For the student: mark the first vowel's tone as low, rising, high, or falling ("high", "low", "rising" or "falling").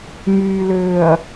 low